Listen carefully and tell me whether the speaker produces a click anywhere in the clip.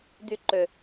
yes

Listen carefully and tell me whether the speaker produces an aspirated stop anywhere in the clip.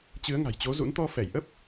no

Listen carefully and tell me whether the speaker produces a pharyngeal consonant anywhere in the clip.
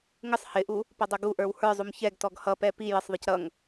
no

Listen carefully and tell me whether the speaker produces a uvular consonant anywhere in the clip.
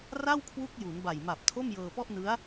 no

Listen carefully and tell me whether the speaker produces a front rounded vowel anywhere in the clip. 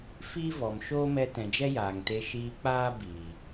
no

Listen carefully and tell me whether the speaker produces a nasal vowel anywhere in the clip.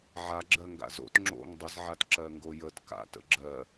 no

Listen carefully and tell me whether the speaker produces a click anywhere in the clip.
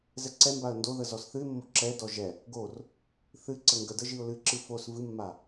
yes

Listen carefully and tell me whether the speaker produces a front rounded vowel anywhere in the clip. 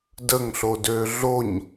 yes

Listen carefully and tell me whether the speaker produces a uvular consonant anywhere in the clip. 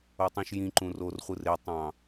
yes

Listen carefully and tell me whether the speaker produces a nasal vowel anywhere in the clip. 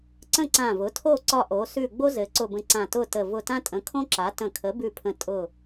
yes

